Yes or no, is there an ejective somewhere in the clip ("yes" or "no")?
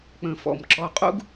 yes